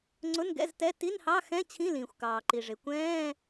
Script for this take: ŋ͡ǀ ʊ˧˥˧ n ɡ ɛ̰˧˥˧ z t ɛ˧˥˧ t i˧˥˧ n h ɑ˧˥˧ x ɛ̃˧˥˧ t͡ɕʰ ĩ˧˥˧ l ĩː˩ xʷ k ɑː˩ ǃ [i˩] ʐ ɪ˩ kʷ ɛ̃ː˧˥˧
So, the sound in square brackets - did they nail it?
yes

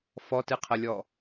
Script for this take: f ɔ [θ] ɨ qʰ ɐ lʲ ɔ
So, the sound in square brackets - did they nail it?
no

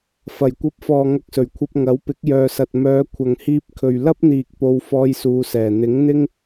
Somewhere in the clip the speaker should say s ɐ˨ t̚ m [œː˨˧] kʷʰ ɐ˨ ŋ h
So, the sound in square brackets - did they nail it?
yes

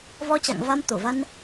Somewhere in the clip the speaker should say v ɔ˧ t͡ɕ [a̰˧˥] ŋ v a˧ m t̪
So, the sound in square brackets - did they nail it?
no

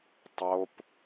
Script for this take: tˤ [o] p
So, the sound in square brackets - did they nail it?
yes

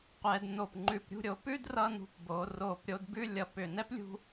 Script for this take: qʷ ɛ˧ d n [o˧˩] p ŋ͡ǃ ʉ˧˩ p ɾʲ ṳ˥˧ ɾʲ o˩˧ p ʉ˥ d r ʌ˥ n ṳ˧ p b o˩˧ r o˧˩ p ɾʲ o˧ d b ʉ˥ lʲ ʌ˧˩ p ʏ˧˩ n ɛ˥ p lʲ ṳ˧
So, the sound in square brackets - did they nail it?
yes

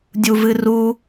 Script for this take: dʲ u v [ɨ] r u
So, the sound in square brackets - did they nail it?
yes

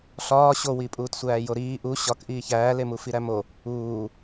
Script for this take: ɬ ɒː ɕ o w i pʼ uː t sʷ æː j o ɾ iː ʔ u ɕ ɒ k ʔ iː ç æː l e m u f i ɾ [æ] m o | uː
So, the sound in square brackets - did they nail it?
yes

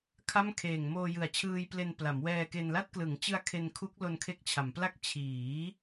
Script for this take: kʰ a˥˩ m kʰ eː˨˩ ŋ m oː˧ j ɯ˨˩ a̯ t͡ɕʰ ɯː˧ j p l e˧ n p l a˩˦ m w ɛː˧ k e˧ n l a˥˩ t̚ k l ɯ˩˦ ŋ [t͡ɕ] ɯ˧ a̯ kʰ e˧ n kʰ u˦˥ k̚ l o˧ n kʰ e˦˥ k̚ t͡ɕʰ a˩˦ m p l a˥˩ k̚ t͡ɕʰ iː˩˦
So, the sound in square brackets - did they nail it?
yes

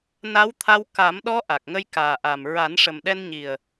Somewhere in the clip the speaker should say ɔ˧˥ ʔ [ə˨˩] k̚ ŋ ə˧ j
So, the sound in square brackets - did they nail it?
no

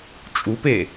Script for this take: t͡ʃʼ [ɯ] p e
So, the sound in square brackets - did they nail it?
no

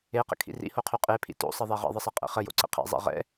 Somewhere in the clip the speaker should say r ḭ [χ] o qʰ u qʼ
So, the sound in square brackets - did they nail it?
no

